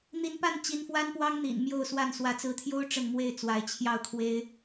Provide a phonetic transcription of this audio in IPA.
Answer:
n̪ i˧˥ n p a˥˩ n t͡ɕ i˧˥ n f w a˥ n p w ɑ˥ ŋ n̪ ḭ˨˩ n m j o˥˧ ʊ̯ s w a˥˩ n s w ä˧˥ t͡s ɹ̩˧˥ t̪ʰ j o˥ ʊ̯ ʈ͡ʂ ə˥˧ n m w e˥˩ ɪ̯ t͡s w a˧˥ ɪ̯ t͡ɕʰ j ɑ˥˩ ʊ̯ kʰ w e˥ ɪ̯

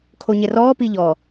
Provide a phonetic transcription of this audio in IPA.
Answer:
kʰ o ɲ ɛ r ɔː p i ʎ ɔ

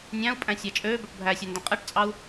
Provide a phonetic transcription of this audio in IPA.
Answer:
nʲ æ̃ u̯ pʼ æ̃ sʲ æ t͡ʃʼ øː b ɵ ʈ bʱ æ sʲ ɛ n d ɛ̃ qʼ ɛ ʈ t͡sʼ ɑ u̯

